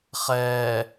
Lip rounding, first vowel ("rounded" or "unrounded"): unrounded